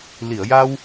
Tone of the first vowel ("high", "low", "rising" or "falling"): low